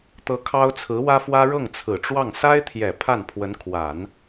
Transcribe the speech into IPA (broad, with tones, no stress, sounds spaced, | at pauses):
t̪ ɤ˧˥ kʰ ɑ˥ ʊ̯ t͡sʰ ɹ̩˧˥ w ä˥ f w ä˥ ɻ ɤ˥˩ ŋ t͡sʰ ɹ̩˨˩ ʈ͡ʂ w ɑ˥˩ ŋ s a˥ ɪ̯ t̪ʰ j ɛ˨˩ pʰ a˥˩ n pʰ w ə˧˥ n kʰ w a˨˩˦ n